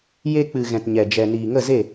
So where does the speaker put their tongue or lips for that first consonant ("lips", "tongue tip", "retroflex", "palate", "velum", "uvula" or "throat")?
palate